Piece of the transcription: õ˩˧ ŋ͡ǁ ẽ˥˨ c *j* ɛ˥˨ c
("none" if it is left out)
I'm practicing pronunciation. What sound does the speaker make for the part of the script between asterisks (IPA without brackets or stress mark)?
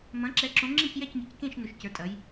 j